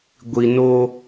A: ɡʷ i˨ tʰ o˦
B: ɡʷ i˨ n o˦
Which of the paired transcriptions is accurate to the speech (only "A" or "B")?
B